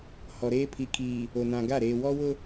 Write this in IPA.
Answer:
hɔ˨ɾeː˦ pʰi˨kʰiː˨ | o˨nã˨ɡa˦˨ ɾeː˨wɔ˦wʊ˦

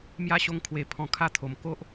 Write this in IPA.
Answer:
mja˦ɕo˧ŋkʰwe˨˩ pʰɔ̃˨˩kʰa˦t̪ʰo˨˩m ko˦ʔ

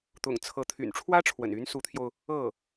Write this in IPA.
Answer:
t̪ʊ̰˨˩ŋt͡sʰɤ˧˥ t̪ʰy̰˨˩nʈ͡ʂʰwä˥ʈ͡ʂʰwə̰˨˩ny˧˥n su˧˥t̪ʰjo˧ʊ̯ | ɤ˥˩

